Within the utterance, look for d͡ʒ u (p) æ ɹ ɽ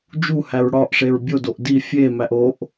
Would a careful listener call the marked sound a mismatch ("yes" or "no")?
yes